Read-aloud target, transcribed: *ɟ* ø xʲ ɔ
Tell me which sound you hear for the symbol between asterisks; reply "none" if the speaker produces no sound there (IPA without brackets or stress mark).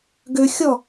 ɡ